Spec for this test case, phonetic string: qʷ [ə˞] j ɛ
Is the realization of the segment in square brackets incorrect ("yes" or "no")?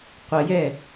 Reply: yes